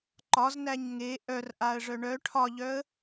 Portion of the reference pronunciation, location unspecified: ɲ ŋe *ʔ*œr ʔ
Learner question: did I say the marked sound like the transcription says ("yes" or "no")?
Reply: yes